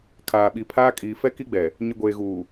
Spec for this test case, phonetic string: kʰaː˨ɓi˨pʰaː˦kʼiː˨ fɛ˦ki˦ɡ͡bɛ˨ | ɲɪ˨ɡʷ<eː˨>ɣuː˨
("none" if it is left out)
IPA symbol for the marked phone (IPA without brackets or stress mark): eː˨